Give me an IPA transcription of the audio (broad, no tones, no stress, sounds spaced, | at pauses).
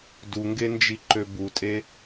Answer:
d u ŋ ɡ e n d͡ʒ i ǃ ø b u tʼ e